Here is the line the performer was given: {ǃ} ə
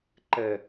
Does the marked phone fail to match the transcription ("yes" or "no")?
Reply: no